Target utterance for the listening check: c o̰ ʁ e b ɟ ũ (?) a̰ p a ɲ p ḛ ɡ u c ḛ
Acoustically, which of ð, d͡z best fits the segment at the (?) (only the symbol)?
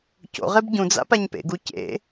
d͡z